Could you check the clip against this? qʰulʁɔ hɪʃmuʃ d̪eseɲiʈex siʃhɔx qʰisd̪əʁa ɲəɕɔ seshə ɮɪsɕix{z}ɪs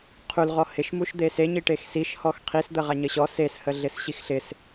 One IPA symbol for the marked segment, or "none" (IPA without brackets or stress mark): ɬ